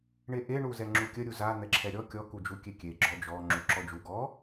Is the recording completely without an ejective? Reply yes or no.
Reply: yes